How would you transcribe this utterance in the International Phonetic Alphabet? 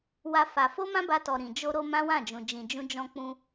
w a˦ f a˧ f o˦ m ã˦ b a˧ t ɔ˨ ɾ ĩ˨ d͡ʒ o˧ ɾ o˧ m ã˦ w ã˦˨ d͡ʒ ũ˨ d͡ʒ ĩ˨ d͡ʒ ũ˧ d͡ʒ ɔ̃˧ k͡p ũ˧

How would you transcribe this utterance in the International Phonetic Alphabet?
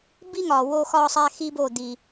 b i˦ ŋ ɒ˨ w o˧ x ɒ˦ sˤ æ˦ x i˦ b o˦˨ d̪ i˨

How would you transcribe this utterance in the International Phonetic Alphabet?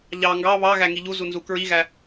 ʎ ɑ ŋ ɡ ɑ β ɑ ɣ æ ŋ i ʎ u z u n z u k ɹ i ɣ æ

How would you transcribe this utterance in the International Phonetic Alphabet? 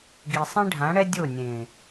ɡ i˨ sˤ ĩ˦ ɖʱ ã˨˦ ɽ ɛ˦ dʲ o˦˨ nʲ ẽ˨

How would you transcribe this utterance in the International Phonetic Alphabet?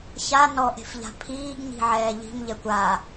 ç a n ɔ ʔ e̤ f ʎ a̤ pʰ iː ɡ ɲ i̤ ʕ ɛː ʎ i̤ m ʎ ɛ kʷ a

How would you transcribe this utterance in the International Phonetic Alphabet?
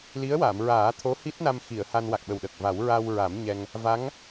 l i˧˥ ə̯ w a˨˩˨ m ɹ aː˨˩˦ t̪ʰ o˧˥ h i˦˥ t̚ n a˧ m x i˨˩˨ ə̯ h a˧ n w a˨˩ k̚ ɓ ə˨˩ w ɗ ə˨˩ k̚ v a˨˩˦ w ɹ a˧ w ɹ a˨˩˦ m ɲ ɛ˧ ŋ | v a˧˥ ŋ

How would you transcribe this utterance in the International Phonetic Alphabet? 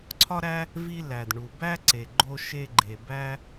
ǀʰ ɒ˥ ɾ æ˥ | v i˧ l æ˩ d ɳ u˩ b æ˥ ǀ e˩ ɡ͡ǃ o˧ ʃ e˧ ɡ͡ǃ e˩ b æ˥

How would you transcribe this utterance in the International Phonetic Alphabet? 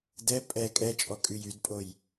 d ɛ pʼ ɛ kʼ ɛ t͡ʃʼ ɔ kʼ y j y d pʼ o j

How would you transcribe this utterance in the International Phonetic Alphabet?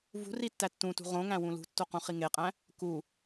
v ṳ r i tː æ tː ũ t ṳ ʁ õ ŋ æ̃ w ũ l ṳ tː o q ũ χ i ŋ e qʼ æ̃ | k u

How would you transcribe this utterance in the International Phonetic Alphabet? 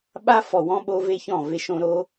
ɓ a˦ f ɔ˨ w ɔ̃˦ ɓ o˦ v e˦ ç ɔ̃˦˨ v e˦ ʃ õ˦ ɾ o˦

